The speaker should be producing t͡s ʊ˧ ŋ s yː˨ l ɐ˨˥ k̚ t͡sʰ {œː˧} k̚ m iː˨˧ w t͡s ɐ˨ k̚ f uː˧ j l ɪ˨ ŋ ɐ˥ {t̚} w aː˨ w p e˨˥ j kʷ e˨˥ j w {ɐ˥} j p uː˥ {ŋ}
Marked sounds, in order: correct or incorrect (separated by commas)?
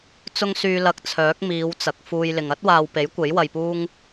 incorrect, correct, incorrect, correct